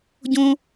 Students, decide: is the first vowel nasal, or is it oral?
nasal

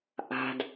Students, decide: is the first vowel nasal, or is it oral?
oral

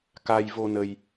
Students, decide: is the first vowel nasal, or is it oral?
oral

